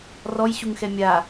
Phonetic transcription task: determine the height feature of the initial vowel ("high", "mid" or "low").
mid